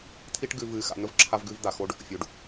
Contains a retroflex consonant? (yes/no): yes